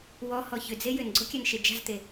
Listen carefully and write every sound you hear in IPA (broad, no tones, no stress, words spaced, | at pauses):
wɔhɔ çʏd͡ze jʏnɡ͡ǀokʲanʃe d͡ʒa̤zt̪e